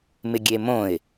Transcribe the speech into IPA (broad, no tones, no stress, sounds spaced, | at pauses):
m ɪ ɡʲ e m õ ɪ̯